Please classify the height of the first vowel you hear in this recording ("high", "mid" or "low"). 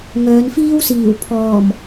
mid